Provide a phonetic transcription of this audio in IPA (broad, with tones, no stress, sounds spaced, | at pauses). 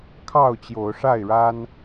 kʰ ɑ˥˨ ʊ̯ t͡ɕ j o˨˦ ʊ̯ ʂ a˥˨ ɪ̯ ɻ a˦ n